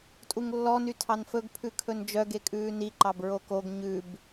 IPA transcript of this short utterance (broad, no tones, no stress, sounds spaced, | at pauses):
tʼ u ŋ lː ɔ n y tʰ ɑ n f ɵ ɡ pʰ ʉ kʰ ɵ n d͡ʒ œ ɡ e kʼ ʉː n i ǃ ɑ b ɹ o k o ɡ ɲ ʉ b